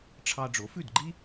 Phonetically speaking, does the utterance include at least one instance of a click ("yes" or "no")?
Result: yes